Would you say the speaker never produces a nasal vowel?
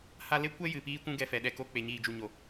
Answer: no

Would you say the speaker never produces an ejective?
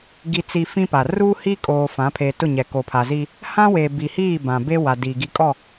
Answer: no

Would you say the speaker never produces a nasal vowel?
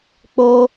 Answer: yes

